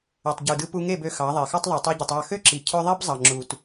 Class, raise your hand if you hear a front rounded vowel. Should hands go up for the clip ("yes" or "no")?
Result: yes